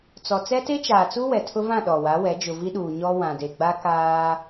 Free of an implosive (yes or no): no